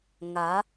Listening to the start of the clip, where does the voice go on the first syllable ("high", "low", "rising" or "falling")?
rising